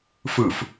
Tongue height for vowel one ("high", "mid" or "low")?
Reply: high